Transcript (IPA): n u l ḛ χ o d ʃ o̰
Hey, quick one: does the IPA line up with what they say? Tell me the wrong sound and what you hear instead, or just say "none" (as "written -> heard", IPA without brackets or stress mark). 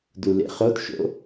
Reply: n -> d